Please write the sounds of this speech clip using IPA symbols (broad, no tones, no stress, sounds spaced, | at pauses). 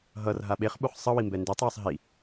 ɦ ʌ r ɦ a ɓ e χ ɓ u χ sˤ ʌ w i m b ɛ n d e tˤ w ʌ sˤ ɦ i